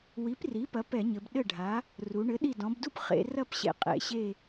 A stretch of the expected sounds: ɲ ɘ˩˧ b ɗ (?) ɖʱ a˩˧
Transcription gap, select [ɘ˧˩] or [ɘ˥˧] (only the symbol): ɘ˧˩